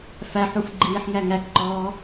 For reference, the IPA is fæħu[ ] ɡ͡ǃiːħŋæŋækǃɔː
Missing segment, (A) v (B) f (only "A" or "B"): B